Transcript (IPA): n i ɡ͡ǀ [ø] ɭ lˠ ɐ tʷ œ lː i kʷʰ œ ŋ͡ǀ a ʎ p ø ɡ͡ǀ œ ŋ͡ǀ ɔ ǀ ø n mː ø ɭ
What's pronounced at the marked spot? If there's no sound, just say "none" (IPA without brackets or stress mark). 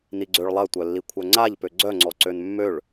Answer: ø